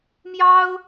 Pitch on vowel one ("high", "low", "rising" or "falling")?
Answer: high